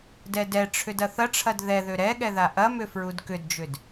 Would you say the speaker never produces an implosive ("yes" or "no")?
no